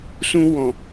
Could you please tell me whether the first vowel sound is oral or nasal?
nasal